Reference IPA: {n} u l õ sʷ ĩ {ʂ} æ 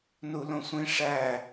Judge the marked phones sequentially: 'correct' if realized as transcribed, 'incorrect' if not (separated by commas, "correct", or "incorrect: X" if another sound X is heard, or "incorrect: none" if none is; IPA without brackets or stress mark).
correct, correct